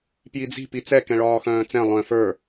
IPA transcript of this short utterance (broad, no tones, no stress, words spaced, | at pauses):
pjid͡zi̤ pit͡sɛ kɛ̃ɭɒːxœ̃ːt͡sɛ̃ lˠœ̃ fə˞